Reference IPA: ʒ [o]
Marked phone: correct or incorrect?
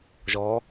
incorrect